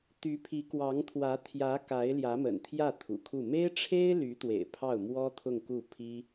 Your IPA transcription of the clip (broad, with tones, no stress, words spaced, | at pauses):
t̪y˧˥pʰi˧˥kwɑ˧˥ŋt̪ʰwä˧˥ t̪ʰjä˧˥ ka˧˥ɪ̯ ljä˧˥mə̰˨˩nt̪ʰjä˥˩ t̪ʰṵ˨˩kʰu˥˩ me˥ɪ̯ʈ͡ʂʰe˥ɪ̯ly˧˥t̪wḛ˨˩ɪ̯ pʰɑ˥˩ʊ̯mwɔ˥t̪ʰʊ˥˧ŋku˥˩ pʰi˥